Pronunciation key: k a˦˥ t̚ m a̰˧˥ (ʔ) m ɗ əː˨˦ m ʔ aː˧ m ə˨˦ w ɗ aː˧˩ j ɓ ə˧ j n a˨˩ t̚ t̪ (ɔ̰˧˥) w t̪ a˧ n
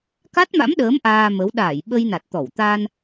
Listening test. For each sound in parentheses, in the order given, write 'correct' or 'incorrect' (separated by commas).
incorrect, incorrect